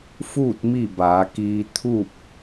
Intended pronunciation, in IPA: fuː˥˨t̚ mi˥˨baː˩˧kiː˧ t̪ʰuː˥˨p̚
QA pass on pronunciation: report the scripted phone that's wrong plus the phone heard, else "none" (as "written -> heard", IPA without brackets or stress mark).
none